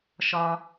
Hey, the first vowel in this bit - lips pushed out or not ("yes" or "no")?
yes